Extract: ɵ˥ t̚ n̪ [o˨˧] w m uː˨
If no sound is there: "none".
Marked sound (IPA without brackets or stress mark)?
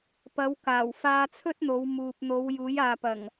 o˨˧